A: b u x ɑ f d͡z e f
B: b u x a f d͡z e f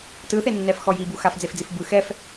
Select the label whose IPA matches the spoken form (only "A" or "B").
B